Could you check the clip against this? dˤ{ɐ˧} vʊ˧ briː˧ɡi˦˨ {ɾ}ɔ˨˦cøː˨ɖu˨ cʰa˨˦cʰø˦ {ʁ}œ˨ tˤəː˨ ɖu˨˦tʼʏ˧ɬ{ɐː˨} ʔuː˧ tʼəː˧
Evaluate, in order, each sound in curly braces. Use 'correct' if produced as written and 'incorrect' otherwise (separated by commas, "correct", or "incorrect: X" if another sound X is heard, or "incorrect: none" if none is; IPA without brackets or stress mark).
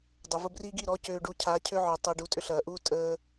incorrect: ɐ˨, correct, incorrect: ʕ, correct